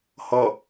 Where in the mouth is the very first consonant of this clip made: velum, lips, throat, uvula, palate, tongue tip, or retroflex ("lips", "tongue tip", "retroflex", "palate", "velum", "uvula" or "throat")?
throat